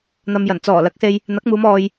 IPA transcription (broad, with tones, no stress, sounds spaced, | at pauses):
n̪ ɐ˧ m j ɐ˨˩ n t͡s ɔː˨˩ l ɐ˨˥ k̚ s e˧ j | n̪ ɐ˨˥ k̚ m uː˨˧ m ɔː˨ j